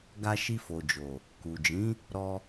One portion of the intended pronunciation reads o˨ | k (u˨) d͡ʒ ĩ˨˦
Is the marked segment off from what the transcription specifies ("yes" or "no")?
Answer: no